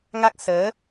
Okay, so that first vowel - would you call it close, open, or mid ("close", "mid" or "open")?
open